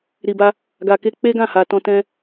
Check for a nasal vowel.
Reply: present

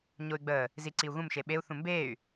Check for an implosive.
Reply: present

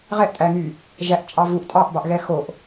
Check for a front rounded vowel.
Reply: present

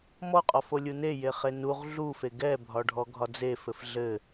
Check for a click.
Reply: absent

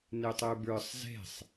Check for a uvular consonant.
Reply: absent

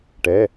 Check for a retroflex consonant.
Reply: present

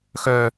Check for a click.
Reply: absent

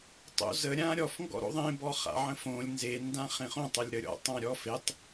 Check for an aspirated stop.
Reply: absent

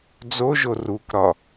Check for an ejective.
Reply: absent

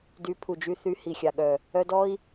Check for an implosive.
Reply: present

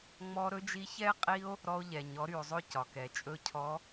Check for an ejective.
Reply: present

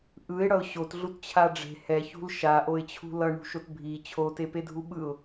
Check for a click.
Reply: absent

